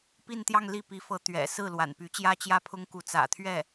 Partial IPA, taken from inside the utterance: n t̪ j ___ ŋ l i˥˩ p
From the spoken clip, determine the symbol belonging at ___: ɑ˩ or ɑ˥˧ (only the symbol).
ɑ˥˧